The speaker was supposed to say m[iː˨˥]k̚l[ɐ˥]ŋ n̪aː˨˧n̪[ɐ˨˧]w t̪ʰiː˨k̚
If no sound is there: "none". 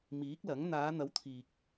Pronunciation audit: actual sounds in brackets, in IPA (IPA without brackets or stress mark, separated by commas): iː˨˥, ɐ˨˥, ɐ˨˥